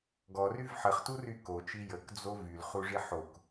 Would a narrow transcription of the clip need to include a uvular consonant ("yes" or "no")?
yes